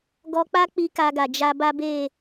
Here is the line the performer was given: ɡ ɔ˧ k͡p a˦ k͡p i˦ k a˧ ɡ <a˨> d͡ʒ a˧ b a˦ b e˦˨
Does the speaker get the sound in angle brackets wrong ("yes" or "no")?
no